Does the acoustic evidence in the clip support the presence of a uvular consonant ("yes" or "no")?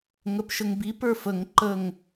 no